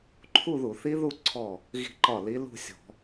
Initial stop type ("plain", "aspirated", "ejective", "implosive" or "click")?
click